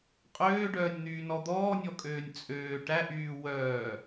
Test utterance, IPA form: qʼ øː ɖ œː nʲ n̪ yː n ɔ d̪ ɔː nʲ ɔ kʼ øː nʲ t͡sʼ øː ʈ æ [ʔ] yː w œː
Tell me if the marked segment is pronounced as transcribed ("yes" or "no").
yes